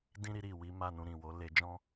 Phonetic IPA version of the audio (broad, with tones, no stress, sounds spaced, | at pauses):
d ĩ˦ ɾ i˧ ɾ i˨ w i˨˦ m a˦˨ n ũ˧ ɾ ĩ˨ w o˨˦ l e˧ d͡ʒ ɔ̃˦